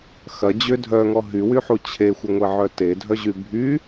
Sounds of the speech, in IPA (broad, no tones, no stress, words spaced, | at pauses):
xɐ d͡ʑʏ dʱœŋɔ ɦywyħu t͡ɕʰexʷɪŋʷeʕœ tedʱœʑy bʱy